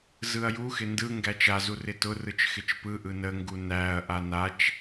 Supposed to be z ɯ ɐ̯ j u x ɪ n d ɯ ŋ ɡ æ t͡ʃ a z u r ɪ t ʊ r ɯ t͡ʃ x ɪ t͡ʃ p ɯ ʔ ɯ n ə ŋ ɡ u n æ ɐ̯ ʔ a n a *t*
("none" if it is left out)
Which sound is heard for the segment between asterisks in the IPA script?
t͡ʃ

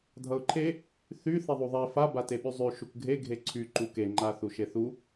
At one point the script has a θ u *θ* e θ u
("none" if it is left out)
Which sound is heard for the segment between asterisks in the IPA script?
ʃ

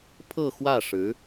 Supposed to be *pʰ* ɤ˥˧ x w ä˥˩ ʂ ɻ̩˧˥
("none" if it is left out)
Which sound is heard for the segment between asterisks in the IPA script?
pʰ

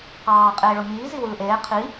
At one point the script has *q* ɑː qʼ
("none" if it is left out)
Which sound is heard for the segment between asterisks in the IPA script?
q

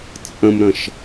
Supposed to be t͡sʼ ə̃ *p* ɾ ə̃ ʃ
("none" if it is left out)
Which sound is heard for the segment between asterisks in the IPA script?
m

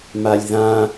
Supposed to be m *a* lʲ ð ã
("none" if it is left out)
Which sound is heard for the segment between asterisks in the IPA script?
a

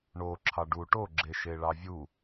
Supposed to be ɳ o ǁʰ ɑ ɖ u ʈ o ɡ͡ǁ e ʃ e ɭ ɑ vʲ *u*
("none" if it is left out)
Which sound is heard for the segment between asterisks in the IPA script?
u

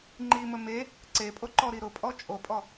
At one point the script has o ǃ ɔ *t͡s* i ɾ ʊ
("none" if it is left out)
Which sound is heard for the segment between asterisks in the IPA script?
ɾ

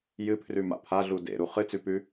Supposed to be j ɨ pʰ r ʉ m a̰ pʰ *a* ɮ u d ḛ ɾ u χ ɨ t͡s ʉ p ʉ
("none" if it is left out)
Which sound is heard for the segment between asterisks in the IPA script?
a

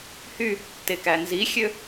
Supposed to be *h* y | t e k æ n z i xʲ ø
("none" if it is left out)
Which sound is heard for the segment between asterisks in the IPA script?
h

